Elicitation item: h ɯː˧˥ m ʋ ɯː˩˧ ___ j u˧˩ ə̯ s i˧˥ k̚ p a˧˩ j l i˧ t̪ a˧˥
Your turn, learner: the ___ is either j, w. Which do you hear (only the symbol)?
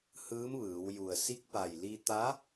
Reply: w